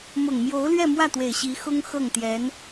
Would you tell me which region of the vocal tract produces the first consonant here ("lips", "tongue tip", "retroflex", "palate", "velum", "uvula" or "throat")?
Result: lips